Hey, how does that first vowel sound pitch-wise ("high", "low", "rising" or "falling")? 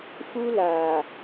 high